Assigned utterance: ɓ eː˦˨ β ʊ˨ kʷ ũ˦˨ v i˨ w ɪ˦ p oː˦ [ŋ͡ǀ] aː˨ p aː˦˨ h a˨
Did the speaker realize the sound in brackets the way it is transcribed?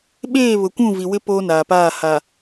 no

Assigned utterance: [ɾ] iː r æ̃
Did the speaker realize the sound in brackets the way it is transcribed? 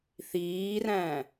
no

